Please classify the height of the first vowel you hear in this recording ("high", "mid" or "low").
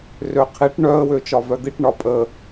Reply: mid